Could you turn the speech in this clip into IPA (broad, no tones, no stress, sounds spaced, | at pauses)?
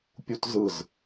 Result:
pʲ u t z ɯ z